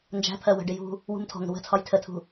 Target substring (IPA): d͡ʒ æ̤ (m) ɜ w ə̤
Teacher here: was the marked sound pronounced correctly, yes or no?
no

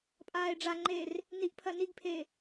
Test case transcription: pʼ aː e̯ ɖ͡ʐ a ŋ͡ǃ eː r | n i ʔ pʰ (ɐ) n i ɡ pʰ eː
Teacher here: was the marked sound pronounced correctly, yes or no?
yes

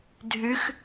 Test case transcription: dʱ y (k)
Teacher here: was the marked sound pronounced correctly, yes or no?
no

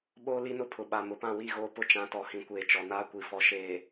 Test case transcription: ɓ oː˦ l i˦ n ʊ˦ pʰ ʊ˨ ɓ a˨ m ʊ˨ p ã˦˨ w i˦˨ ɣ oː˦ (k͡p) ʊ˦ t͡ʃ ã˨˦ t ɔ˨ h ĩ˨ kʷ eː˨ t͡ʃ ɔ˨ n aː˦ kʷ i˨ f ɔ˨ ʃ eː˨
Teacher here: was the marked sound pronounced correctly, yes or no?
no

